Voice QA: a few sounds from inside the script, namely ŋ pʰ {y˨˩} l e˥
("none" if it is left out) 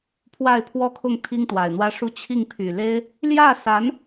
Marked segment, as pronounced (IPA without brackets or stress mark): y˨˩